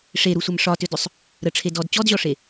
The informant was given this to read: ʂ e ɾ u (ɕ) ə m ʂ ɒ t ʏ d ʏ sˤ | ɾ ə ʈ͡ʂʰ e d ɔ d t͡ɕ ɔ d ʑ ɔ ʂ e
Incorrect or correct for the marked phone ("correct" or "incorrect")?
incorrect